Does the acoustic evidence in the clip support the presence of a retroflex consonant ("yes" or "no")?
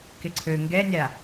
no